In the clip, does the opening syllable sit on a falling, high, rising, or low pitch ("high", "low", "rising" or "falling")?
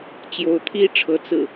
rising